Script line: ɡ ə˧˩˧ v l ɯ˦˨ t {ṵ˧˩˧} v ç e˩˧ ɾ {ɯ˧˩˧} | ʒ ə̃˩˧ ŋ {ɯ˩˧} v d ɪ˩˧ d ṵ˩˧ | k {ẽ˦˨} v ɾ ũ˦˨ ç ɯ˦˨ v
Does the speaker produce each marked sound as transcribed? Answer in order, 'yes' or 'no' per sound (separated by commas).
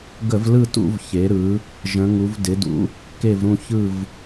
yes, no, no, no